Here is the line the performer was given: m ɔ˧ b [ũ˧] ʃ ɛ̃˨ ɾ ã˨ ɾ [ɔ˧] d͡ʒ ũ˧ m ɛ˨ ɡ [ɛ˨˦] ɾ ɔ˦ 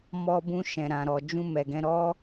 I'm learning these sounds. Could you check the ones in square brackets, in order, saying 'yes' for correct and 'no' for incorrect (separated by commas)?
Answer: yes, no, no